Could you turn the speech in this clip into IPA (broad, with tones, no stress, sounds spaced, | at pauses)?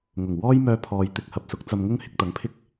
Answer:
ŋ ʊ˨˩ ŋ w ɔː˥ j m œː˧ pʰ ɔː˨ j t̪ ɪ˧ k̚ h ɐ˨ p̚ s ʊ˨˥ k̚ t͡s ɐ˧ m ŋ ʊ˥ ŋ h ɪ˧ k̚ t̪ ɐ˨˥ ŋ pʰ ɪ˥ k̚